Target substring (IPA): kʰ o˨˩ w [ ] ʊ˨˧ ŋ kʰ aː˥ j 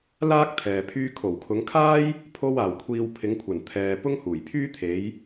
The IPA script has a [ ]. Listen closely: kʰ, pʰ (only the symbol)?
kʰ